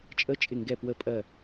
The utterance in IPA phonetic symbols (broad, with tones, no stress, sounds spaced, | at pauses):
t͡ʃʼ ə˧˥˧ t͡ʃʼ ɪ˧˩ ŋ ɡ ɛ˧˩ p w ə˧˩ pʼ ɜ˧˩